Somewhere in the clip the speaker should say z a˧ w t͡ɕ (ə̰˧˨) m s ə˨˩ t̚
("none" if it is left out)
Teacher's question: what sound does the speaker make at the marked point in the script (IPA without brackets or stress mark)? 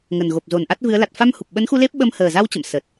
ə̰˧˨